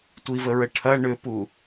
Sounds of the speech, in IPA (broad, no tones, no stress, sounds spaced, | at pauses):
tʷ i v ə ɹ ə ʈʰ ɐ ɳ ʏ p u